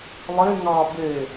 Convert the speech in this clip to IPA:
lˠ e ŋ ɑ b e

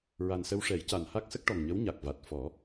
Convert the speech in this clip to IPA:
ɹ a˨˩ n s ə˧ w ʂ ɛ˨˩˦ j c a˨˩ n h a˦˥ k̚ s ə˦˥ k̚ ʈ ɔ˨˩ ŋ ɲ ə˧˥ w ɲ a˨˩ k̚ v a˨˩ t̚ f ɔ˨˩˦

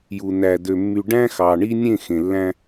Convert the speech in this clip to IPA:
j u˨ n æ˨ d ø˨ mː y˨ ɖ æ̃˦ x ɑ˨ ɳ i˦ nʲ ẽ˦˨ x ẽ˨ lː æ̃˦

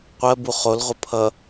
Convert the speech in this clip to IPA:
qʷ ɜ b u χ o l ʁʷ ə pʰ ʌ

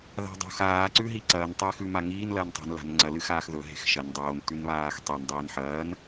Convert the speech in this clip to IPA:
ð a̤ dˤ o̤ x aː ǀ ʉ ɦ i ǀ ɐː n tˤ eː x ʉ m a ŋ iː n l ɐː n tˤ e̤ n l a̤ n ŋ͡ǀ ɐ l ɨ x aː x ð ɵ ɦ e̤ x ʃ ɐ n dˤ oː n t ʉ n β aː x tˤ i n dˤ iː n ħ ɐː n

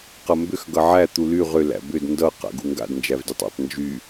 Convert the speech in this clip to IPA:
q ʌ m b ʏ x ɡ ʌ ʕ æ t̪ u l y ʁ ʏ l æ̰ b ʏ d n d ʌ q a̰ ɡ u ŋ ɡ a̰ d n d͡ʒ æ v d y tˤ æ̰ tˤ n d͡ʒ y

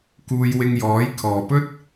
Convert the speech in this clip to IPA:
k uː˧ j w ɪ˧ ŋ j ɔː˨˥ j kʰ ɔː˨ p ɵ˥ t̚

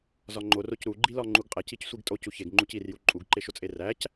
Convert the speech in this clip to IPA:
z ɒ ŋ͡ǃ o r o c ɾ u ɡ͡ǃ i l ɒ ŋ͡ǃ u ɡ qʼ æ c i c sʷ i ɡ tʼ o c u ç e ɡ ŋ͡ǃ u c i r j u ǃʼ u ɡ ǃ e ʃ o t͡sʼ e r æ c

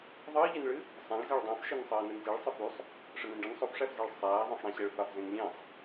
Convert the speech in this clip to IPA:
ðˤ ɨː ʎ ɨ n ɭ ɨ | sˤ æ̃ ɭ z ɛ ɭ dˤ æ̃ f ʃ ɛ n sˤ ɜː n ɛ n z i ɭ sˤ ɨ f y sˤ | ʂ ə n ẽ n ɖ ə n sˤ o f ʂ æ f z æ ɭ sˤ æː ðˤ ẽ sˤ ɽ æ̃ ɕ ɛ ɭ f a f z ẽ n lʲ ẽ sˤ

